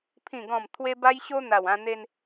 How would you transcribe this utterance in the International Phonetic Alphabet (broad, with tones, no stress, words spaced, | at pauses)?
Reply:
pʰĩ˨˩ɡɔ̃˨˩m t̪ʰwe˧ba˧j ɕo˧ n̪a˨˩wã˧ n̪e˧n